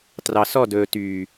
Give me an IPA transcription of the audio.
t r ɑ˨ s ɔ˦˨ d ɵː˨ t yː˨

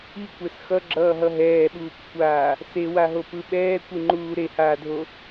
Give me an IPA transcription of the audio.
i kʷ ɛ s x ʌ ɡ͡ǁ ʌː ɦ ʌ ɦ ɛː ɓ uː p kʷʰ aː | s e w a ɦ o p ɯ ɓ ɛː kʷ i ŋ͡ǃ uː ɾ e h aː dʱ o

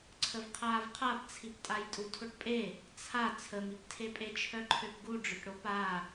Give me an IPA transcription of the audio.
ǀʰ ə v qʰ aː v qʰ a p t͡sʰ i p tʼ a j tʼ u tʰ o ʈ pʼ e | t͡sʰ a t͡sʰ ə m i p tʰ e pʼ e t͡ʃʰ œ ǃʰ ø p ɡ u ɖ͡ʐ ø ʈ ɽ o p aː

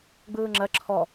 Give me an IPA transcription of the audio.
ɡ͡b ɯː ŋ͡ǁ ɜ ǁʰ ɔ

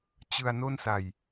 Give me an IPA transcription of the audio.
t͡ɕ ɯ˧ a̯ n o˥˩ n s a˨˩ j

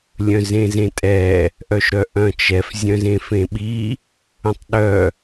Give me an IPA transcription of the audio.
lʲ œ̃ z ẽ z ẽ tʼ ɛ | ʔ œ ʃ ɾ œ ʔ œ̃ t͡ʃ ɛ f zʲ œ̃ z ẽ f ẽ ɓ i | ə̃ tˤ ɗ œ

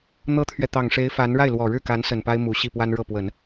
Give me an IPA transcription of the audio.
n̪ ɤ˥ t̪ʰ ɥ ɛ˨ t̪ ɑ˨˩ ŋ ʂ e˧˥ ɪ̯ f a˧˥ n ɻ a˥˩ ɪ̯ l w ɔ˨˩ ɻ ɻ̩˥˩ k a˧˥ n s ə˨˩ n p a˥ ɪ̯ m u˨˩ ɕ i˥˩ p w a˥ n ɻ ɤ˥˩ p w ə˨˩˦ n

